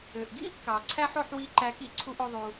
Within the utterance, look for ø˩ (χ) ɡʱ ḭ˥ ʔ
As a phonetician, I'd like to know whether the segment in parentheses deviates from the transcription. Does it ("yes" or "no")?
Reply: yes